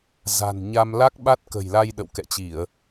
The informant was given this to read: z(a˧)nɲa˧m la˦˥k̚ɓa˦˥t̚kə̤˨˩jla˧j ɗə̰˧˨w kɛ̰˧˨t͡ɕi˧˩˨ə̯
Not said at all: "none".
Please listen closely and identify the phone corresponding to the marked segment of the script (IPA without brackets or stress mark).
a̤˨˩